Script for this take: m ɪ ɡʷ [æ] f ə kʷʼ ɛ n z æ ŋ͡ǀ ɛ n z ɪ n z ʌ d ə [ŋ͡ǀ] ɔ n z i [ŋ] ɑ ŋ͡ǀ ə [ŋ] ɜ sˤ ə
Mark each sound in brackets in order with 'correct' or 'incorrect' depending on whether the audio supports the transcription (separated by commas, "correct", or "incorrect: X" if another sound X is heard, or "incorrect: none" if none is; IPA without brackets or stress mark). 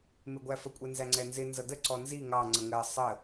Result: correct, incorrect: ǀ, correct, correct